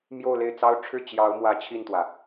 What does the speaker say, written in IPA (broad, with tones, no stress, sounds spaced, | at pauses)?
m j o˥˧ ʊ̯ l e˥˩ ɪ̯ t͡s ɑ˥ ʊ̯ ʈ͡ʂʰ ɻ̩˥˩ t͡ɕ j ɑ˧˥ ʊ̯ m w ä˧˥ t͡ɕʰ i˥˩ n t̪ w ä˩